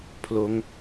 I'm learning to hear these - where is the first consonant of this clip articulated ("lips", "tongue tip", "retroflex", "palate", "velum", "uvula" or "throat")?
lips